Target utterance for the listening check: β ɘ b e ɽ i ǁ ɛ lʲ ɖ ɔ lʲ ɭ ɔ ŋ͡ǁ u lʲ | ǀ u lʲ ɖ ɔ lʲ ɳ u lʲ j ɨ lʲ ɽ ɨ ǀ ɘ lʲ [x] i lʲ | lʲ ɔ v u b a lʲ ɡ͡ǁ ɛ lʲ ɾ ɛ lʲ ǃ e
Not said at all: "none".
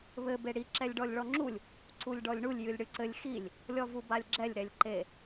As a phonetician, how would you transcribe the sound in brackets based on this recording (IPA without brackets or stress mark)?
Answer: x